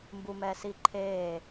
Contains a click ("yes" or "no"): yes